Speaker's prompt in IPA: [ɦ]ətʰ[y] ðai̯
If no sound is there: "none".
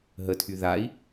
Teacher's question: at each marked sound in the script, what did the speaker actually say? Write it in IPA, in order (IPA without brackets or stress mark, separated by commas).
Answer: ɦ, y